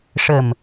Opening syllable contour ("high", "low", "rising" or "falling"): low